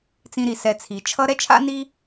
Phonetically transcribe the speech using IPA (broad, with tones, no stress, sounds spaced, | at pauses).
t͡s ĩ˨ ɾ i˩ s ɛ˨ t͡sʰ i˩ t͡ʃʰ ʌ˦ ɾ ɛ˥ t͡ʃʰ a̰˥ n i˦